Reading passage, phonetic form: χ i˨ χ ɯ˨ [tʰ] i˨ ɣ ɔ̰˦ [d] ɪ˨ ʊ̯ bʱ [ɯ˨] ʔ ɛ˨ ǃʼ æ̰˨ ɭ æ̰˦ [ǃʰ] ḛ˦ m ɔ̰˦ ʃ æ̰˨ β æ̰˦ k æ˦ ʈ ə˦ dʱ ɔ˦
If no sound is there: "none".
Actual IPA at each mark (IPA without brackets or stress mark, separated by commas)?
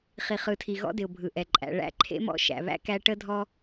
tʰ, d, ɯ˨, ǃʰ